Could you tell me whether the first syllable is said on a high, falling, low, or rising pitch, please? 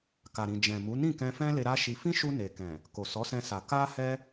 low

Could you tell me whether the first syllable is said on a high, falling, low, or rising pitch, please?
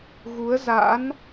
rising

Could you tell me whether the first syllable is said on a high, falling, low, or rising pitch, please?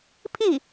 falling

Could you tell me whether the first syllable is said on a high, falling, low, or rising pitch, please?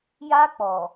high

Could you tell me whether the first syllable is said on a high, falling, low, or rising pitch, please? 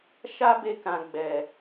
high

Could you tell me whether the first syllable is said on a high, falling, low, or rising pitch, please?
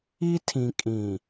high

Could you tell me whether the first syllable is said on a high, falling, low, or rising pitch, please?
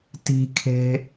high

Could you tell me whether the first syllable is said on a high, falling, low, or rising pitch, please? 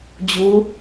rising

